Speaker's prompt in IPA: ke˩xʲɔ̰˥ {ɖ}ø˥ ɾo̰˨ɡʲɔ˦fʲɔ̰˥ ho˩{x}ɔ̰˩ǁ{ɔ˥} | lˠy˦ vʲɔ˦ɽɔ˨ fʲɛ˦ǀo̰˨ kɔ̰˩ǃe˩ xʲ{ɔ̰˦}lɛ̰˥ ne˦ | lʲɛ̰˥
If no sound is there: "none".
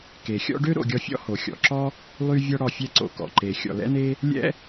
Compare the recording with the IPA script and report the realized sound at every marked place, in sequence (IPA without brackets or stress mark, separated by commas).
ɖ, xʲ, ɔ˥, ɔ̰˩